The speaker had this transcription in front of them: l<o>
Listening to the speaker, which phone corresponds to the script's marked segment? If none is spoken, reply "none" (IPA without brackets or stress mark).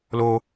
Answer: o